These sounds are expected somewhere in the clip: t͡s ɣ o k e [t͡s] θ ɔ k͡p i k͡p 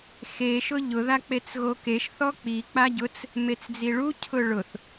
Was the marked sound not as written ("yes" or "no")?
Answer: yes